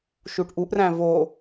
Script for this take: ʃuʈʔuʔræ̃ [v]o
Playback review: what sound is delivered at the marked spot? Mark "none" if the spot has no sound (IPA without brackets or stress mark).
v